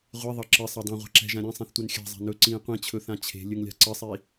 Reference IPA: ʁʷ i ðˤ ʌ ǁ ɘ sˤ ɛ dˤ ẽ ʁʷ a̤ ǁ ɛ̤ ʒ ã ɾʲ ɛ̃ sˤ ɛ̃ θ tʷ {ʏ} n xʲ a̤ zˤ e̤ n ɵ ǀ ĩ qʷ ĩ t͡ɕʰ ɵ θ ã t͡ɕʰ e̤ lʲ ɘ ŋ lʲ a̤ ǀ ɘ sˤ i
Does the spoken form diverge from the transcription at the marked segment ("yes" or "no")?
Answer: yes